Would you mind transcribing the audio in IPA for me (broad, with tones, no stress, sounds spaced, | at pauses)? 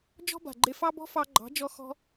d͡ʒ ɔ̤˦ b a̤˨ ɡ͡ǃ e˧ f ɑ˦ b ɔ̤˦ f ɑ˧ ɡ͡ǃ ɑ̤˨˦ d͡ʒ ɔ˧ x ɔ̤˧